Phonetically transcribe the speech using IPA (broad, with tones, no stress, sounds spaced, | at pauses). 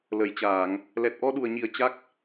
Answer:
l ə˧˩ j t͡ɕ aː˧˩˨ ŋ | l ɛ˨˩ t̚ ʔ ɔ˧ ɗ u˨˩ ə̯ ɲ i˨˩ ə̯ t͡ɕ a˦˥ k̚